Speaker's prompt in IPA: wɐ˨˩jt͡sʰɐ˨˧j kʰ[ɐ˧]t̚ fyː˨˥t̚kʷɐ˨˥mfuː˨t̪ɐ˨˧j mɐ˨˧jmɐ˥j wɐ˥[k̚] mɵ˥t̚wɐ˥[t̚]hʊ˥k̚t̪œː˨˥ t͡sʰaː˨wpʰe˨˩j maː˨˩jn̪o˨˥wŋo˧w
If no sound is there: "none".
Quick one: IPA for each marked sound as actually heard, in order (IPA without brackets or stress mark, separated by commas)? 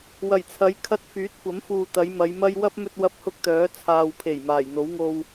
ɐ˧, p̚, p̚